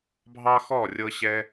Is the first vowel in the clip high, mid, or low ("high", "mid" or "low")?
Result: low